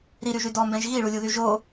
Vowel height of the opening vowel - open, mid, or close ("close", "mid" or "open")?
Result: close